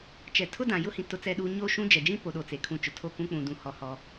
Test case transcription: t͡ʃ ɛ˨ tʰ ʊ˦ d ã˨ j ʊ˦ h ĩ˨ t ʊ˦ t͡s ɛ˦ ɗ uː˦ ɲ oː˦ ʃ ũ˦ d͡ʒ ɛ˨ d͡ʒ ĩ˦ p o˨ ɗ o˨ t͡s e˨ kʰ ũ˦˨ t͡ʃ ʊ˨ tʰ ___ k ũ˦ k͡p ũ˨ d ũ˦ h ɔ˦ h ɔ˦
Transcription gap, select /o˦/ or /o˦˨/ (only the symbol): o˦˨